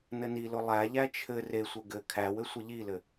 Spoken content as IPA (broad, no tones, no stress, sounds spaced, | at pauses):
n ɘ n i l ʊ lˠ æ ʎ æ t͡ʃʰ ɘ r e sʷ ɘ ɡ ɘ kʰ æ w ɘ sʷ ɘ ʎ i l ɘ